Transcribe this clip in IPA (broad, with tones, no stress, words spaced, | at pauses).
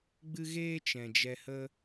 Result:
ɡ͡bɨ˦ ɣeː˦ t͡ʃɛ̃˨d͡ʒɛ˧hə˦